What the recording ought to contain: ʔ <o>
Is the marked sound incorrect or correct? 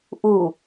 incorrect